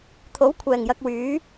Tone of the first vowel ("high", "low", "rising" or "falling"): rising